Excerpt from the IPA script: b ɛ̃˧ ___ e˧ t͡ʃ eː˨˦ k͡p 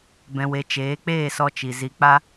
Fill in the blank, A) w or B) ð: A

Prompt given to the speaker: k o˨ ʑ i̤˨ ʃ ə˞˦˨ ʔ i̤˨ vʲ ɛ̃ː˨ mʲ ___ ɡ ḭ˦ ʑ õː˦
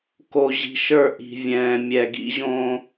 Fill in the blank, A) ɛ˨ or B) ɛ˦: A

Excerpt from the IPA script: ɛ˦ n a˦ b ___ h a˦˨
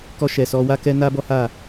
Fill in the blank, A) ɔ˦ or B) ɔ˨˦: A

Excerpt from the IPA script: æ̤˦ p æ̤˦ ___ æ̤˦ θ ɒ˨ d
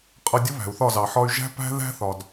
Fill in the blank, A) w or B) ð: B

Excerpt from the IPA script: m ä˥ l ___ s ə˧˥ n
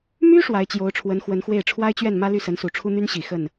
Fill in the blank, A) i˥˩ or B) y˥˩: B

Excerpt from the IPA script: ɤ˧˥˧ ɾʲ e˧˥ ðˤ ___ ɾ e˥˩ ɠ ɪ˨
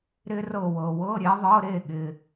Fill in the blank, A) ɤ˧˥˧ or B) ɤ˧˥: A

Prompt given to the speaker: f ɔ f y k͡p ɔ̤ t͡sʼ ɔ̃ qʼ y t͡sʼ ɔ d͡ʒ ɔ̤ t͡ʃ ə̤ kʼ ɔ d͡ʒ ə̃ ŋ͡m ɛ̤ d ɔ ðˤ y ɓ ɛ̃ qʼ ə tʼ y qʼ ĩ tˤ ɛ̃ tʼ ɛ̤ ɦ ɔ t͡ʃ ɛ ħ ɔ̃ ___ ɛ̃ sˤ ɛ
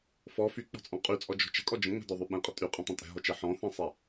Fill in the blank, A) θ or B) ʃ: A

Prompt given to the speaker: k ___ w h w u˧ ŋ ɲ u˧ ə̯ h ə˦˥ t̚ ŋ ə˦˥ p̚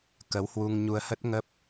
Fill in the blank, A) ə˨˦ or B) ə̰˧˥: A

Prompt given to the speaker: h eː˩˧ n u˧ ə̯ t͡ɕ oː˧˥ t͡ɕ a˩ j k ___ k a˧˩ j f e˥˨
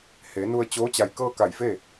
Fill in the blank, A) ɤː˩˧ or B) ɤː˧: B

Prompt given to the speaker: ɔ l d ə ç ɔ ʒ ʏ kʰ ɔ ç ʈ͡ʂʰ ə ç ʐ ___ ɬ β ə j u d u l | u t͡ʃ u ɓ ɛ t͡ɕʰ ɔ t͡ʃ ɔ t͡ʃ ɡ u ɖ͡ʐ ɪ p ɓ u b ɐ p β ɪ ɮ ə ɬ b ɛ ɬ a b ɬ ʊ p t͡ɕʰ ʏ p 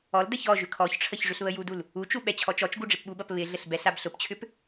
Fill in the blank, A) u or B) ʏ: B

